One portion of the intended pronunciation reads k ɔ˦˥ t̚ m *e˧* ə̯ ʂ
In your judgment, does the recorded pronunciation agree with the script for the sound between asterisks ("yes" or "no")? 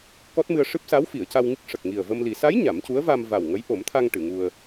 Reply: no